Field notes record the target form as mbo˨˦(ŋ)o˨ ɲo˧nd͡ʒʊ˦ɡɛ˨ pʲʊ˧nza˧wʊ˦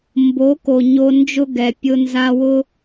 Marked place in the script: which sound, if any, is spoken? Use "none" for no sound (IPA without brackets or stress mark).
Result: k